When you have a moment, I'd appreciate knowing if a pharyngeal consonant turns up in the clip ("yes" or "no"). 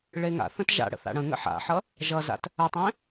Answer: yes